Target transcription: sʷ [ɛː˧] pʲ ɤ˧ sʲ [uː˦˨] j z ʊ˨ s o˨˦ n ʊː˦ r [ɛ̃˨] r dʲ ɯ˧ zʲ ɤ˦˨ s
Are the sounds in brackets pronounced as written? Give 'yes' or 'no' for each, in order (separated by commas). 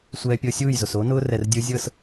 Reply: yes, yes, no